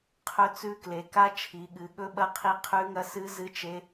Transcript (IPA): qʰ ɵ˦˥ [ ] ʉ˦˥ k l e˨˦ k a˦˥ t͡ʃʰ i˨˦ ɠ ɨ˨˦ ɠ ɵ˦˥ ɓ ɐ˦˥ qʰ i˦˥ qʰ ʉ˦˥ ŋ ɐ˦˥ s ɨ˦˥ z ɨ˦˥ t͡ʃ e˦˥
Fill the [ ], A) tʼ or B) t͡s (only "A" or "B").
B